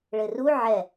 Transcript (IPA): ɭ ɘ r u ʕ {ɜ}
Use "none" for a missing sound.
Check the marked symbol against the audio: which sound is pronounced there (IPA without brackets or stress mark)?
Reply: ɛ